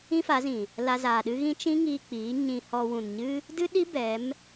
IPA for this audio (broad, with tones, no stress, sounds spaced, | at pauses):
ĩ˦ f a˨˦ z ĩ˨ | l a˧ z aː˨ ɗ ɨ˦ ɣ ĩ˦ t͡ʃ ĩ˦ ŋ iː˧ k͡p iː˨˦ ɲ ĩ˧ h ɔ˧ w ũ˨ n ɲ ɨ˦ | d ɨ˦ ɗ i˦ b ɛ˨˦ m